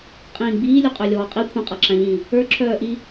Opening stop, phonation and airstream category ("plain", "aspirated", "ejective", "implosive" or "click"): ejective